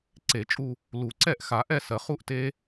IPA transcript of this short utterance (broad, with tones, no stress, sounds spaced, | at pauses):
ǀ e˨˩˦ t͡ʃʼ u˥˧ | l u˨˩˦ ǀ ɛ˥˧ ʔ x a˨˩˦ ʔ ɛ˥˧ s ɜ˩ χ u˥˧ ʔ t e˥